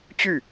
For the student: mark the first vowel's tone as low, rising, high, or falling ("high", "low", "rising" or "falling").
falling